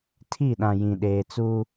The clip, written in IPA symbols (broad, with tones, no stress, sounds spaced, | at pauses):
tʰ i˦˨ ɗ ã˨ j ĩ˨ ɗ eː˨ t͡s u˦